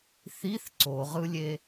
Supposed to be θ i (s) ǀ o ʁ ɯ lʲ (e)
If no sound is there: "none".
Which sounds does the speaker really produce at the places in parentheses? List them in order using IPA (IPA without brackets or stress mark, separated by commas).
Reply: θ, e